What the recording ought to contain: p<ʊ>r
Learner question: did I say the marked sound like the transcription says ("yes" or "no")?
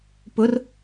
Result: yes